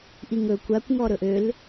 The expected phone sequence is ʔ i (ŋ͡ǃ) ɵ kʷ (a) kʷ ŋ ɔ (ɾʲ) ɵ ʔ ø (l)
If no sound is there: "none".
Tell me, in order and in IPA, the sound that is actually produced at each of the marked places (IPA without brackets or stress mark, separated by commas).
ŋ, a, ɾ, l